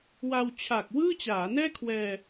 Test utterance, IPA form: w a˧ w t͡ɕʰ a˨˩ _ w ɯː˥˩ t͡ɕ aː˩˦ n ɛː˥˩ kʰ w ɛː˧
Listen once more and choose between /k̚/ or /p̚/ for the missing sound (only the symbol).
k̚